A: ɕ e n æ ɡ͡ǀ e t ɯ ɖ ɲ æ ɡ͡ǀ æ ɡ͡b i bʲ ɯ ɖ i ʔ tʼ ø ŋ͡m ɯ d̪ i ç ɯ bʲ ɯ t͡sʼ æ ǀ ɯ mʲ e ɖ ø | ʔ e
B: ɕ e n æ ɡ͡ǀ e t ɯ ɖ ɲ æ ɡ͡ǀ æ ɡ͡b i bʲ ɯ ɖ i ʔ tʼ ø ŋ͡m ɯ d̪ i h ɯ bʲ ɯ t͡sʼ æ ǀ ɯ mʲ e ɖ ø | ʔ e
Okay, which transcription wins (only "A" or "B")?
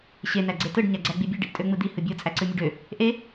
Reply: B